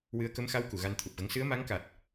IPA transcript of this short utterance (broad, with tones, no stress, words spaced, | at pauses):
wɨ˧˥ə̯ kə˧˥mxa˧˥w ku˨˩˨ɣa˧nt̪ʰu˨˩p̚ɣə˧˥ŋ sɨ˧˥ə̯ma˧˥ŋka˨˩t̚